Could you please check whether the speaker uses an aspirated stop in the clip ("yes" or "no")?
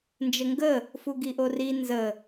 no